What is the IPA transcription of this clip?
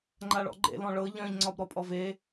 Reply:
ŋ͡ǃaɭɔ̰ɡ͡ǃḛ lɔ̃ɭɤ ʎœ̃ʎ ŋ͡ǀɒbɾɔpʼɔve

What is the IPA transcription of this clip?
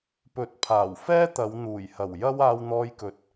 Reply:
pɵ˨˥t̚pʰaː˨˩wfɛː˥t̪ɐ˨˧w n̪uː˨˩jhɐ˨˩w jɐ˥w aː˧wn̪ɔː˧jkɵ˨˥t̚

